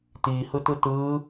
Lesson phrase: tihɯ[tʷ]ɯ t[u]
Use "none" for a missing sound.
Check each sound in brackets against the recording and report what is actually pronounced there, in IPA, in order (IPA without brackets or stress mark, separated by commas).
t, ɯ